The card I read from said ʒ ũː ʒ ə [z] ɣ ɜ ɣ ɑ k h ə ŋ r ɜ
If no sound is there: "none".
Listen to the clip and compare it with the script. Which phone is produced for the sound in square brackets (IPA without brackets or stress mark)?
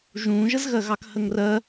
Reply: z